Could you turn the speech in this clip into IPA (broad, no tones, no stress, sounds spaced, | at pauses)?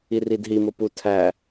i r i d ɦ i m o p u tʰ æ